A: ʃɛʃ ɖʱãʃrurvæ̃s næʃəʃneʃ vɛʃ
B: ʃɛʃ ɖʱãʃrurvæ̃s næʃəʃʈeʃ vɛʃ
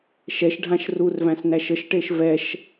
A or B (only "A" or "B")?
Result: B